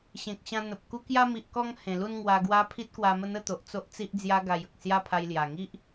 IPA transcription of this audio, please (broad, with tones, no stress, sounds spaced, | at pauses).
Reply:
ɕ ẽ˨ k̚ ɕ ã˧ n̪ ə˨ p̚ k u˦ k j a˧ m i˨ ʔ k ɔ˧ ŋ h ẽ˨˩ l u˥˧ n ŋ w a˧ ɡ w a˦ pʰ i˦ t̚ k w a˧ m ə˥˧ n̪ ə˥˧ t̪ o˨ ʔ t͡s o˦ ʔ t͡s i˦ ʔ d͡z j a˦ ɡ a˧ j ə˨ k̚ s j a˥˧ pʰ a˧ j l j a˨˩ ŋ i˦ ʔ